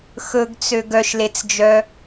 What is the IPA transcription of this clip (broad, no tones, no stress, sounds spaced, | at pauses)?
x ɵ ɡ t͡s ø ɡ œ ʃ l e t͡s d͡ʒ œ